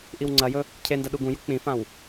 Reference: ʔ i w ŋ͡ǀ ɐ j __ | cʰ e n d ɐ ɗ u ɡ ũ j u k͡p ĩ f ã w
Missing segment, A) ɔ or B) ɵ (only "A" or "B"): B